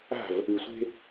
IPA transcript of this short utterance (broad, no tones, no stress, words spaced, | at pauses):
a̤v | ɨsʷe̤